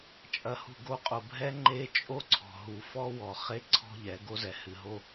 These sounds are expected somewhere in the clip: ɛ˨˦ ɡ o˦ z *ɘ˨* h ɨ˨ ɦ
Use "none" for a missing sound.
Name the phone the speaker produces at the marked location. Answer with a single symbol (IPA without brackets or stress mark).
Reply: ɛ˨